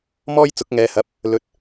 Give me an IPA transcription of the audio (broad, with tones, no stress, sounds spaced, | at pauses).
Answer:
m ɔː˥ j t͡s ʊ˨˥ k̚ ŋ ɛː˨ h ɐ˨˥ p̚ | l ɵ˨ t̚